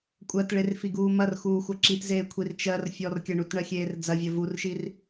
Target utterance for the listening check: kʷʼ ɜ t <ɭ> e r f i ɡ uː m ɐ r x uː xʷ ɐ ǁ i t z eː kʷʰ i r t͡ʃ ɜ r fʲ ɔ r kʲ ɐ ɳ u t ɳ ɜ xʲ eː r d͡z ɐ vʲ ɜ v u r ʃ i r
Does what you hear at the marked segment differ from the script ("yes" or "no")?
no